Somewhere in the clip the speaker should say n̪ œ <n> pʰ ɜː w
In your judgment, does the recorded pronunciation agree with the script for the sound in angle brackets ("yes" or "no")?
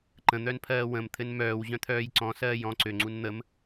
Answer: yes